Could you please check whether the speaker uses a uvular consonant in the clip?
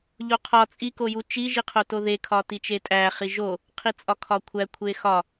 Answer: yes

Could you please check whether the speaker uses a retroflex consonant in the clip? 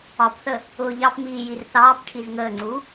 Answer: yes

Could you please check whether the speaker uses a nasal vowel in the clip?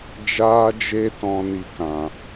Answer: yes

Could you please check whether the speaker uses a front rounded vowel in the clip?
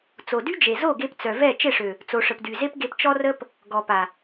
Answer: yes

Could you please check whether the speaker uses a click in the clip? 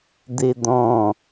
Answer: no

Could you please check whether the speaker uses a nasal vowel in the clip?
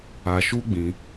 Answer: yes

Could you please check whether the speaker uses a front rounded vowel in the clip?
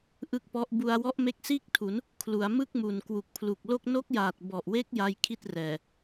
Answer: no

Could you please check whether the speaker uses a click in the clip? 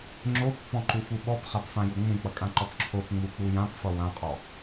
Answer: yes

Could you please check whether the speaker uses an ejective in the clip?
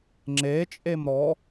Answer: yes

